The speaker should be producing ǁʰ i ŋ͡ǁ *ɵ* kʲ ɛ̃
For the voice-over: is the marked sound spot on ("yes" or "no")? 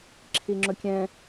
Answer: yes